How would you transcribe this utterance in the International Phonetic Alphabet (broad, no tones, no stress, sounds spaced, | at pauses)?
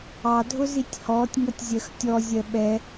ɑ dʱ ʊ z i tʲ h ɔː tʲ ŋ ʌ tʲ zʲ ɜ x tʲ ɔ zʲ ɜ ɓ ɛ